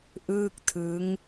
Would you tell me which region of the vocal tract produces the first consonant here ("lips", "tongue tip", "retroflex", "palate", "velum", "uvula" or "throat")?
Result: throat